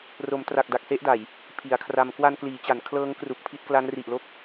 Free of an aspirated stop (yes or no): no